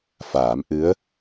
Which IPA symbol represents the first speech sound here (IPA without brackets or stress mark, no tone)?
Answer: f